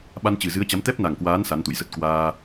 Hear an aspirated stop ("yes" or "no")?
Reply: no